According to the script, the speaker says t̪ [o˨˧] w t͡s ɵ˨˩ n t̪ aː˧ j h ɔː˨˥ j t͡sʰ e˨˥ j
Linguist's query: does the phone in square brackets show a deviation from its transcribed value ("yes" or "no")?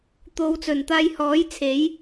no